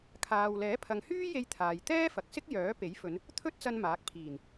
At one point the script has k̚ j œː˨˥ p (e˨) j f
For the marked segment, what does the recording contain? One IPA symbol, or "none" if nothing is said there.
e˨˥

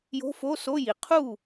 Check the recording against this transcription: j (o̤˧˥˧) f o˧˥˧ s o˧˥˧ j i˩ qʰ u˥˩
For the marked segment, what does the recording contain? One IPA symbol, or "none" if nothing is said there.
o̤˧˥˧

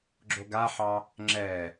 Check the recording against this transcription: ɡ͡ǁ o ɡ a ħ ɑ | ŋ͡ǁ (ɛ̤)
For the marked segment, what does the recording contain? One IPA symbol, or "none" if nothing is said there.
ɛ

